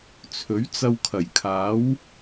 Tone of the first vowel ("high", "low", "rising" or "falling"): rising